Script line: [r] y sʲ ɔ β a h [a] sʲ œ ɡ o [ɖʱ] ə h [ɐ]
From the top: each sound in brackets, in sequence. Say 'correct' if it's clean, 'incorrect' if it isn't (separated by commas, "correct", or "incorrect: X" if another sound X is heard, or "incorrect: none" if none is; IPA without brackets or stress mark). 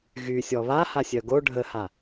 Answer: incorrect: ɣ, correct, correct, incorrect: a